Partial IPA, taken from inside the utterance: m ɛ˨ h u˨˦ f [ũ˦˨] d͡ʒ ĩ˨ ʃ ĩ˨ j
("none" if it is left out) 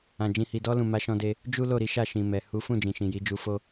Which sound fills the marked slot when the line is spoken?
ũ˦˨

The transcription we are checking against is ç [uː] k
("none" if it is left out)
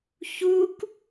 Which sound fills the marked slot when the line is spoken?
uː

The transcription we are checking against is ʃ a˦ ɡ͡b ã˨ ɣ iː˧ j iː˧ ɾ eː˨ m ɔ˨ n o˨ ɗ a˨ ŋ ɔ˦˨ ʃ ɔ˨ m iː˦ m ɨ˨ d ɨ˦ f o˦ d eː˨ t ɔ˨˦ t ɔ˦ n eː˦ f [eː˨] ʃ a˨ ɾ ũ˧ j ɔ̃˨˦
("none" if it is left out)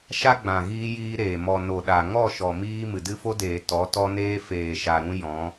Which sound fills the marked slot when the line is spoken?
eː˨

